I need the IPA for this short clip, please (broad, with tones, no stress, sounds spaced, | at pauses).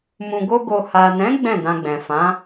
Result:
m ũ˨ ɡ o˧ ɡ o˨ h a˨ n ɛ̃˨˦ ɡ͡b ɛ̃˦˨ d ã˧ ɡ͡b ɛ̃˨ f ã˨˦